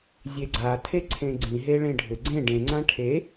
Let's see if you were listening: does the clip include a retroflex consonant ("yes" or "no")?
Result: yes